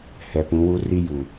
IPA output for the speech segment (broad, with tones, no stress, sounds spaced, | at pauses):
h ɛ˨ p ũ˨˦ w u˦ r i˦ j u˨